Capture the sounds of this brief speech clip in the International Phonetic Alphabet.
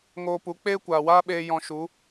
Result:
ŋ oː˧ p u˨˦ k͡p eː˦ kʷ aː˨ w aː˦ ɓ eː˧ j ɔ̃˧ ʃ u˨˦

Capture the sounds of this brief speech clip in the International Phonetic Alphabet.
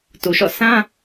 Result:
t u˨ ʃ ɔ̰˦˨ s ã˦

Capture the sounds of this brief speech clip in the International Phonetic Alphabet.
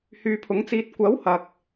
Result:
h yː˨˧ pʰ ʊ˨˥ ŋ t͡s iː˧ t̚ kʷ ɐ˨˥ w h ɐ˨ k̚

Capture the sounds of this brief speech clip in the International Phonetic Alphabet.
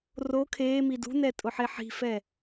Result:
r o kʰ eː m i d ṳ n ɛ tʼ ʊ ħ e ħ i̤ f ɛ

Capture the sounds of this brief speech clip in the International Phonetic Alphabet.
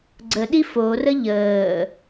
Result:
ɡ͡ǀ ə ɗ i f o r ə ʎ əː

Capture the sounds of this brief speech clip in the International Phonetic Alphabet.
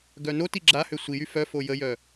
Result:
ɡ œ n o t i ɡ͡ǁ a h ø sʷ i j y f œ f o j ə j œ

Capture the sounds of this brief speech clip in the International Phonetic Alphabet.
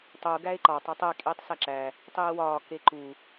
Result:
tˤ u ɡ æ e̯ ǃ ɒ tˤ æ tˤ e kʼ iː tˤ s æ ǁ æ | tˤ iː w ɒː k e ǃ u

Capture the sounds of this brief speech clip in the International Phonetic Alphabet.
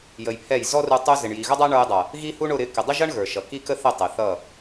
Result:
j ə˧ j pʰ ɛ˦˨ j z ɔ˦ r u˧ tˤ u˧ z ɪ˨ ɳ j i˨ ɣ ʌ˦ dˤ æ˦ ɳ ə˞˧ j dˤ ʌ˨ | ɣ i˦ h u˦ ɳ ʊ˧ ɾ ɪ˧ k ɪ˨ dˤ ɪ˦ ʒ ʌ˦ ɳ ɣ ə˞˨ ʃ ʌ˨ k i˦ k ə˦ θ ɪ˦˨ tˤ ɪ˨ θ ʌ˦˨

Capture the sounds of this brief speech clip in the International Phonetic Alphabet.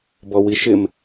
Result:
b ɔ w i ʃ ɪ m

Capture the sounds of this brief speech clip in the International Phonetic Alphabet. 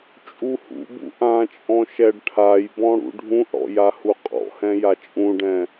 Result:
t͡ʃʼ u h ṵ b ṵ ʔ ã t͡ʃʼ ɔ̃ ʃ ɛ ɖ ʈʰ a j b ɔ̃ ɽ ṵ ɖʱ ũ ʔ ɽ ɔ̰ j a h u qʼ ɔ̰ h ɛ̃ j a t͡ʃʼ ũ ɖ ɛ̃

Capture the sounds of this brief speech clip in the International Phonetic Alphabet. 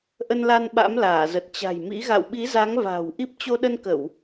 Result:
ʔ ə˧ n l a˧ n ɓ a̰˧˥ m l aː˧˩ z ə˨˩ t̚ t͡ɕ a̤˨˩ j m ḭ˧˥ ɣ a̰˧˨ w ɓ i˨˦ z a˨˦ ŋ v a̤ː˨˩ w ʔ i˦˥ p̚ t͡ɕ o˧ ɗ ə˧ n k ə˧˩˨ w

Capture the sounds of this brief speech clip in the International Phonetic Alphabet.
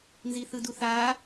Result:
n z i θ ɯ d u θ aː

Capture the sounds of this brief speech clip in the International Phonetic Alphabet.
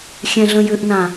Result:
xʲ ɛ̃ ɮ ə̃ j ʏ ʔ n ã

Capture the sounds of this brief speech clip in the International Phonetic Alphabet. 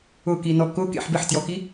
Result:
ʊ k i n ɔ k ʊ k ḛ ħ b ɪ ħ t j ɔ k i

